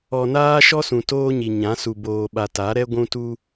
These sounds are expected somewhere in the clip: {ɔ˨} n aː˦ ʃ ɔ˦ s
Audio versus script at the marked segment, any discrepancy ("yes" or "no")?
no